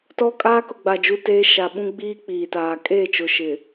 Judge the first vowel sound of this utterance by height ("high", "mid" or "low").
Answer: mid